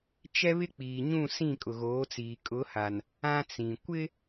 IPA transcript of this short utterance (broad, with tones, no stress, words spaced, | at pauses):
t͡ʃɛ˦βɪ˦k͡piː˨ɲũ˦˨ sĩ˦˨kʼʊ˨ɣoː˨˦t͡siː˨ kʼʊ˨˦ha˨n | ã˦t͡sĩ˨ kʷɪ˦